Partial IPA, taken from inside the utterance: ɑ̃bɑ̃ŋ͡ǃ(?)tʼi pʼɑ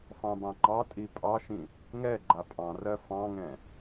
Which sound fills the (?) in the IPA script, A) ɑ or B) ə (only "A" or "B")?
A